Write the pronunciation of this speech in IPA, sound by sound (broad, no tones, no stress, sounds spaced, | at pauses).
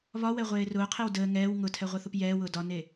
β ɒ w ɛ ʁʷ eː r ʊː qʰ e w d əː ŋ ɛː w ŋ ʊ tʰ ɛ ʁʷ ə θ ʊ p j ɛː w ʊː d ɒ n e